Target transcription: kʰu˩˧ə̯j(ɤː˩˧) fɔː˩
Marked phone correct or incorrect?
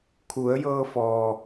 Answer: incorrect: ɤː˧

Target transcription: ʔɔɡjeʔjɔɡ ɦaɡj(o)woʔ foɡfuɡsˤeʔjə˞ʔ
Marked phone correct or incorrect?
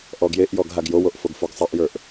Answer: correct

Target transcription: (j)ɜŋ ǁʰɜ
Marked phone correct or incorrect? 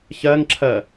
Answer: incorrect: ç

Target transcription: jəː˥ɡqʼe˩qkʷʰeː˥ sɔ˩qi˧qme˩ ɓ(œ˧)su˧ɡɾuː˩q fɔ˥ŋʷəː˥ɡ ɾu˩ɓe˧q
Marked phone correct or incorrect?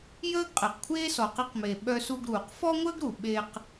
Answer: correct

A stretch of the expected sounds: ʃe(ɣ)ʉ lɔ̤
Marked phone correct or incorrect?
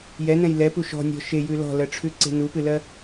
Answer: incorrect: j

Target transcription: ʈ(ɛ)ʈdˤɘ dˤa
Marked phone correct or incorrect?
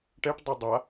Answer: correct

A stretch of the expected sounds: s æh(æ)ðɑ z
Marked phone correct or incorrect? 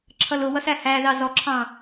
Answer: correct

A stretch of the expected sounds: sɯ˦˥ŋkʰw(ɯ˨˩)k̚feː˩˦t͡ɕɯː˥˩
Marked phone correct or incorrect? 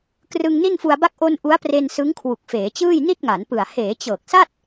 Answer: incorrect: u˨˩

